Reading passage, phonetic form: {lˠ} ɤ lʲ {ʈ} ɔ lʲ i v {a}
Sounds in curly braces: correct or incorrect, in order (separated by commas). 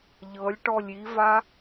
incorrect, correct, correct